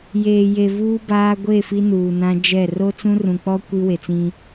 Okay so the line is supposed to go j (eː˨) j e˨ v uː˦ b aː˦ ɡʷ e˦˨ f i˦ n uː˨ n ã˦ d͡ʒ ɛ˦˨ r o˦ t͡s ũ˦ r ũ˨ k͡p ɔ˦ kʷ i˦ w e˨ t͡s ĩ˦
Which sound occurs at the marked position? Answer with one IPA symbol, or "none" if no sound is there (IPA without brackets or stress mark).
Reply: eː˨